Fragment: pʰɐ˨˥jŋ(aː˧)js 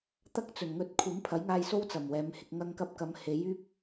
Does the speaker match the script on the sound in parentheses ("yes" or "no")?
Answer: yes